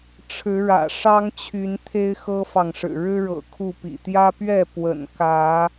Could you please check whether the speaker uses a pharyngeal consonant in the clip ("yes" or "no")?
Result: no